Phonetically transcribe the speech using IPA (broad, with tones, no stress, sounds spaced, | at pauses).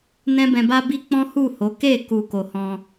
n ɛ̃˦ b ɛ̃˧ b a˦ b i˦ k͡p ɔ̃˦ h u˦˨ h o˨˦ k e˦˨ k u˨ k o˨ h ɔ̃˧